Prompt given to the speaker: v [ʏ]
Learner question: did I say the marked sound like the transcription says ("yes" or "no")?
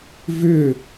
yes